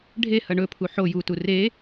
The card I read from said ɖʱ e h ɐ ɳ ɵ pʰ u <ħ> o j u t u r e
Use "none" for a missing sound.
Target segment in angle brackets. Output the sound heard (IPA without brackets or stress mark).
ħ